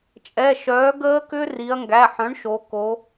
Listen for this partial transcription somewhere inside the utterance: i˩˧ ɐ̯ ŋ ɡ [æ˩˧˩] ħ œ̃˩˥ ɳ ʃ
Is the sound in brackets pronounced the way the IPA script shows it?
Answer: yes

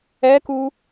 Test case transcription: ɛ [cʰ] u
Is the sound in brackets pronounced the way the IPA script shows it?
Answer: no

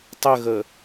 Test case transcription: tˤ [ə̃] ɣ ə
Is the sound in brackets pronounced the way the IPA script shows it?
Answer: no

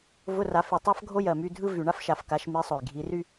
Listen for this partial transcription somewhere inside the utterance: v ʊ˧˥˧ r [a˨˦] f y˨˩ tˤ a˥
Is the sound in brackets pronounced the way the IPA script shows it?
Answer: yes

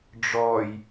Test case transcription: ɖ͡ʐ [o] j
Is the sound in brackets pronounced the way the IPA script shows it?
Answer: no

